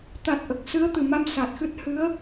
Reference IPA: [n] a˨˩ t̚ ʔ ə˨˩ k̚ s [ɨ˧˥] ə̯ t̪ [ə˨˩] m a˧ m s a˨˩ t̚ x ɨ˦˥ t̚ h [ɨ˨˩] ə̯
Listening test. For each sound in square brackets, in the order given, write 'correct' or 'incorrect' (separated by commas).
incorrect, correct, incorrect, incorrect